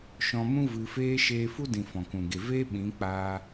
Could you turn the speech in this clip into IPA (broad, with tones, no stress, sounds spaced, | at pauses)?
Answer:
ʃ ɔ̃˧ m ũ˦ v ɨ˧ f eː˦ ʃ eː˧ f u˦ d ĩ˨ f ɔ̃˨ k ũ˨ ɡ e˨ v eː˦ ɓ ĩ˨˦ k͡p aː˦